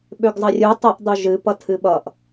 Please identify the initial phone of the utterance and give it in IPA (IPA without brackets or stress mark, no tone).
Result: ɓ